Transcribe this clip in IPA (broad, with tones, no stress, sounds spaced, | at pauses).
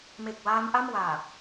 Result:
m e˨˩ k̚ w aː˦˥ m ʔ a˥˩ m w aː˨˩